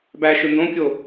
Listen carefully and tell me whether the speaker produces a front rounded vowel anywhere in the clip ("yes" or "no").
no